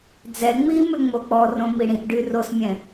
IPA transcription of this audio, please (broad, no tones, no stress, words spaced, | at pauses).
d͡zɛ ŋ͡mi mʏŋ͡mok͡pɔrõ miɽĩʔɖy rosmʲɛ̃